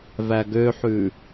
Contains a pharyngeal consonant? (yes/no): yes